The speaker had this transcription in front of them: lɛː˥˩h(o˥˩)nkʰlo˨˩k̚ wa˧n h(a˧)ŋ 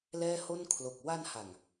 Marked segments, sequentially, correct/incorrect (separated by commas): correct, incorrect